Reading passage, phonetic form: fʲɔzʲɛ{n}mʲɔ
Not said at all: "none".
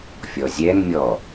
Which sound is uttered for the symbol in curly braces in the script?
n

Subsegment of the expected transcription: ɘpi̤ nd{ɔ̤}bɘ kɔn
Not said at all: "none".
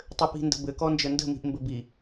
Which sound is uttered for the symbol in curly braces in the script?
ə̤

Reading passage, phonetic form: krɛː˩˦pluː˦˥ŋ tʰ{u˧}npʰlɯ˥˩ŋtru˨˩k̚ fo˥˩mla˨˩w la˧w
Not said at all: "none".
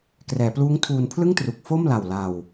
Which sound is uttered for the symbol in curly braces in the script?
uː˧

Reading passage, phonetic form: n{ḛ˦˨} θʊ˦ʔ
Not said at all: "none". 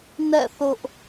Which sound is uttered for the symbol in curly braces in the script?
ɛ̰˦˨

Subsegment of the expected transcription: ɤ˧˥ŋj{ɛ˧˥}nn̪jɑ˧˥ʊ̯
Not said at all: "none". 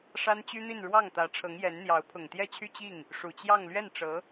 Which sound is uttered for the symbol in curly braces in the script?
ɛ˧˥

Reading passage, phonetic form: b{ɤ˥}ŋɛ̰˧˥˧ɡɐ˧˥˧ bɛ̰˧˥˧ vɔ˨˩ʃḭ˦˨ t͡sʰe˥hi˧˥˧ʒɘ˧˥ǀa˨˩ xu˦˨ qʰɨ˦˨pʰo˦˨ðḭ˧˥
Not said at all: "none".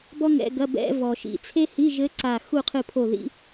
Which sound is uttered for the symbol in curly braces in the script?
ɔ˥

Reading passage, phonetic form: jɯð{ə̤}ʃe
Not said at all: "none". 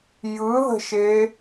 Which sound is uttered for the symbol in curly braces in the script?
ə̤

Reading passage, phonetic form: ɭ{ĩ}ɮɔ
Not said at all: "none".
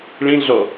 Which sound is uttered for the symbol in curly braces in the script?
ĩ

